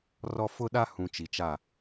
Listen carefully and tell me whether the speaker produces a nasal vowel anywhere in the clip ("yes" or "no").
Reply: yes